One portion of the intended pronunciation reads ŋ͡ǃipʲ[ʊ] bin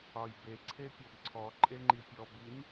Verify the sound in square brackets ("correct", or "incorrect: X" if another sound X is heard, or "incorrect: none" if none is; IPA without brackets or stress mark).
incorrect: ɔ